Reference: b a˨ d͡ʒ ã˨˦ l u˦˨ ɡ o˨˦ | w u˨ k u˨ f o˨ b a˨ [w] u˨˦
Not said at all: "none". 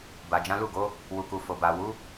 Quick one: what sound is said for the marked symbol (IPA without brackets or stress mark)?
w